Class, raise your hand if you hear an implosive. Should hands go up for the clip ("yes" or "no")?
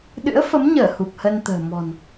yes